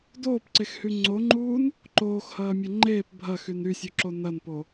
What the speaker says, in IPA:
d oː p ǀ e x h y ŋ͡ǀ o ŋ͡ǃ uː n | ǃ oː x h ɐː mʲ ɐ ŋ͡ǃ eː p bʱ ɐ x y n y sʲ u ǁ o n ɐ n p o

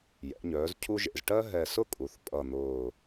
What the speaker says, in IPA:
j ɛ̰˩˧ ɲ œː˩˧ z cʰ u˦ ʒ ḛ˨˩ z ʈ ɜ˦ ɦ ɛ˨˩ s ʊ˦ kʼ u˩˧ θ pʼ ʌ˨˩ n̪ ʊː˨˩

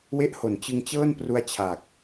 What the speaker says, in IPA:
w e˦˥ ʔ h o˨˩ n t͡ɕ ɯ˧ ŋ t͡ɕ ɤː˥˩ n p r u˧ a̯ t͡ɕʰ a˨˩ k̚

